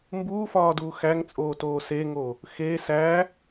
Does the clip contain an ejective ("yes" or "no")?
yes